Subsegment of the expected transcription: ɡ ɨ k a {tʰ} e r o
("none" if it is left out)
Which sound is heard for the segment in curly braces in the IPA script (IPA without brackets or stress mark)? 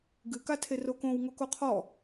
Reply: tʰ